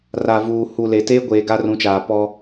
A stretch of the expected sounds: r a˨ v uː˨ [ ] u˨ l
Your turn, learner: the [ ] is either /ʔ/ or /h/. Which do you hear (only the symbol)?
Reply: h